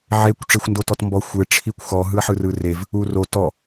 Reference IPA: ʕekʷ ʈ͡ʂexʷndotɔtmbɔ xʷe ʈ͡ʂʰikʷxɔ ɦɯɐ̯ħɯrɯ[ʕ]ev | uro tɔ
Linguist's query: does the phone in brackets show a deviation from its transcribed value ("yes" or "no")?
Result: yes